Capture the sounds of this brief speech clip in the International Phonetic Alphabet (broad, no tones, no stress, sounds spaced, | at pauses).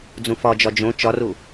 d͡z ũ f ɒ d͡ʒ ɒ d͡ʒ õ t͡ʃ ɒ r u